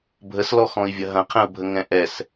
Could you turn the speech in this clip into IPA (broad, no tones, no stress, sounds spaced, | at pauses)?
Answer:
bʱ ə s l ɔ x ɔ̃ i̯ vʲ ɐ ɦ ɐ̃ qʰ ɛ̃ u̯ bʱ ə ŋ ɛ̃ ʔ ɛ s